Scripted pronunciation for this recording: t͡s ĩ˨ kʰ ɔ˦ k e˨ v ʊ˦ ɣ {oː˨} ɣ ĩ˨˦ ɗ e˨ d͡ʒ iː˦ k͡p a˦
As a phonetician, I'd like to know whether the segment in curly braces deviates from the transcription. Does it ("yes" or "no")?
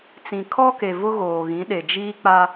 no